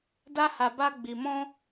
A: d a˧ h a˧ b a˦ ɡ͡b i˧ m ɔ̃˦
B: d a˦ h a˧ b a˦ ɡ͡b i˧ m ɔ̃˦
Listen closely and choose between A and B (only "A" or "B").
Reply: B